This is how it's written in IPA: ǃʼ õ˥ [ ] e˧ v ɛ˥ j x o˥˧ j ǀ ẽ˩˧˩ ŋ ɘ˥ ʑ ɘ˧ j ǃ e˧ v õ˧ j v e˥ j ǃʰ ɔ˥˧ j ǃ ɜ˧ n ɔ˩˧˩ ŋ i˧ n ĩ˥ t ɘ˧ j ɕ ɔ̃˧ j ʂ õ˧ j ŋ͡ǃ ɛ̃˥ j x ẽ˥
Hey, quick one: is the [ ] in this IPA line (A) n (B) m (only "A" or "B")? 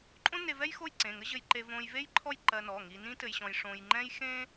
A